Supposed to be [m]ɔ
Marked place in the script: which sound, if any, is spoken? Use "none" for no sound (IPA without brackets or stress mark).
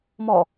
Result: m